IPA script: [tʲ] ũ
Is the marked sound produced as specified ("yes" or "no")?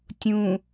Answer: yes